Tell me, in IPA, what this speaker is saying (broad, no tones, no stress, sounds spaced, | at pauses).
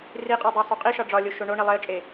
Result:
r i qʼ o dˤ æ sˤ u qʼ i ʃ ɒ ɖ͡ʐ ɒ lʲ o ʃ o ɳ o ɳ i lˠ e ə̯ t͡ʃʼ e